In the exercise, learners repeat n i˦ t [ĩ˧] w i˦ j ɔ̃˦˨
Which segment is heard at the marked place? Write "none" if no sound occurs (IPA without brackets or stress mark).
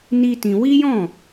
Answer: ĩ˧